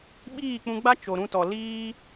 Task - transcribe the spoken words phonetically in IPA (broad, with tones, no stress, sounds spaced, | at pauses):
ɓ iː˦˨ k͡p ũ˧ ɡ͡b a˦ t͡ʃ o˨ ɾ ũ˧ t ɔ˨ l iː˦